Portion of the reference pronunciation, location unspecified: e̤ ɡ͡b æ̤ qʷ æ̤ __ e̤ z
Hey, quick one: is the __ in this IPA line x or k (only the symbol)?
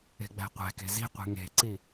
k